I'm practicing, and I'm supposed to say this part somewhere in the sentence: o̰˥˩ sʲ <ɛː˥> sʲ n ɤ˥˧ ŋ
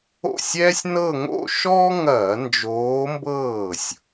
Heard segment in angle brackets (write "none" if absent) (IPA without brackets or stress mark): ɛː˥